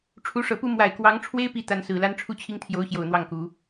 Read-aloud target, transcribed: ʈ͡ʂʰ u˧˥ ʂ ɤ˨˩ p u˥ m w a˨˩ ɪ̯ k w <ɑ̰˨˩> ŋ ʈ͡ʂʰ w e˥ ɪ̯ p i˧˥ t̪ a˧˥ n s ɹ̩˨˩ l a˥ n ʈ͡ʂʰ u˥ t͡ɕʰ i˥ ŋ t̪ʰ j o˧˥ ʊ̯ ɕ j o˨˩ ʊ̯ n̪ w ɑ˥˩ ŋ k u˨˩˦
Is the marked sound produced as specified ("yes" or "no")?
no